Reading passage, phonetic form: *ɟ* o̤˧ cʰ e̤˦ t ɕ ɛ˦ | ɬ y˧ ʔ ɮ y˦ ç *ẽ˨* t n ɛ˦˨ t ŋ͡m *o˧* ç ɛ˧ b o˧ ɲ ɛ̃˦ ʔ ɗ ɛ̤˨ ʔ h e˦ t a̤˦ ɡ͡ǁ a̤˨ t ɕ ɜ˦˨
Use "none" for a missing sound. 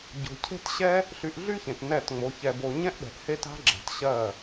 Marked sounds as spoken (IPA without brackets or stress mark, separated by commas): ɟ, ẽ˨, o˧